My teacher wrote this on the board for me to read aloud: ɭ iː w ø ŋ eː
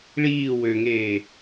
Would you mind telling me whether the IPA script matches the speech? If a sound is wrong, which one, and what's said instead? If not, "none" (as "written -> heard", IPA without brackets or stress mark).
none